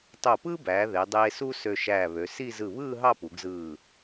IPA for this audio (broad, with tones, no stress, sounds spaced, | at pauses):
tˤ o˧˩ p ɯː˥ b æː˩˧ ð e˩˧ dˤ eː˧ s u˥ s ø˧ ʃ æː˧˩ β ø˩˧ s i˥˧ z ɯ˧˩ β ɯː˥˧ ɦ ɑ˥˧ p u˩˧ ɡ z ɯː˧˩